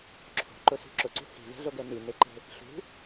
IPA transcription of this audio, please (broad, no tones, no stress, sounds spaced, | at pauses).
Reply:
ǁʰ o̤ ǃ ʊ s ṳ ǁ ʊ ǀ ṳ h i̤ v ɛ̤ ɮ o ɡ ɛ n i n e ǃ e̤ | ɬ ṳ